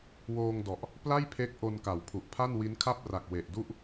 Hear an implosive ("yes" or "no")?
no